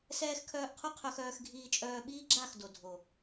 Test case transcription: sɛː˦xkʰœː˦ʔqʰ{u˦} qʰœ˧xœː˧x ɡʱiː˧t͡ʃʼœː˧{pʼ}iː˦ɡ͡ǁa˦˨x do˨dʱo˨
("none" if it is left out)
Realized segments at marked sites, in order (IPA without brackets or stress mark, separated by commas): u˦, ɓ